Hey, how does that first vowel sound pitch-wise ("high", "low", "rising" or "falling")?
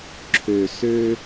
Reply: low